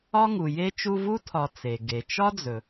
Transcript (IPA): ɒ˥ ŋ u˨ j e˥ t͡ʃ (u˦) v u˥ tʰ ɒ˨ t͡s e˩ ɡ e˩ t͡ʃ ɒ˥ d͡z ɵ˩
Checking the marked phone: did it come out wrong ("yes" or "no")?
no